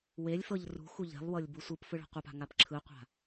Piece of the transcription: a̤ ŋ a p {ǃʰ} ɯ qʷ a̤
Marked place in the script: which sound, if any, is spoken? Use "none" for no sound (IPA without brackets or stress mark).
ǁʰ